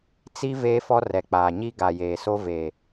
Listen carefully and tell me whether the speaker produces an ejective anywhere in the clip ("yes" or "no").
no